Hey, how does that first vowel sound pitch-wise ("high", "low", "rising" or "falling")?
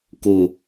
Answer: low